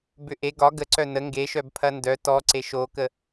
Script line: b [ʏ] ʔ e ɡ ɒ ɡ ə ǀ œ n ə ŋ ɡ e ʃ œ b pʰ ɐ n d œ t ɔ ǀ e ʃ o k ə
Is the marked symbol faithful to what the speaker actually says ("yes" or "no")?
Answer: yes